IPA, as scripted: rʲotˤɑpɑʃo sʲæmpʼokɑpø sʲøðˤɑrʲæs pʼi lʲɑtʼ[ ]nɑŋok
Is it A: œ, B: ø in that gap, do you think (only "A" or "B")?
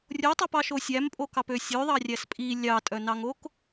A